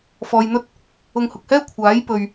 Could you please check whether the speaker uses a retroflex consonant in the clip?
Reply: no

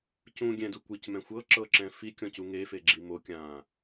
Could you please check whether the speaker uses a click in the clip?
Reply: yes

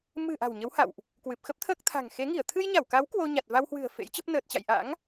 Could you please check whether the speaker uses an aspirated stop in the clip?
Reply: yes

